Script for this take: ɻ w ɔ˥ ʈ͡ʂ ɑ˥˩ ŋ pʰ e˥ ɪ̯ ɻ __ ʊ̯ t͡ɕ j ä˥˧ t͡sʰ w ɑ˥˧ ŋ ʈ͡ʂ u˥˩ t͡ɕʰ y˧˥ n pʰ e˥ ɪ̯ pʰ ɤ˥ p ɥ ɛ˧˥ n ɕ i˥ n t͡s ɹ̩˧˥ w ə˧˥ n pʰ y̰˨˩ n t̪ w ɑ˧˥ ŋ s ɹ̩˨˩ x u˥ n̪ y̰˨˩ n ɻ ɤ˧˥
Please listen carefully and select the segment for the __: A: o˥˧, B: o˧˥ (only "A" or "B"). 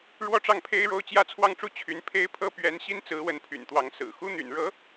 A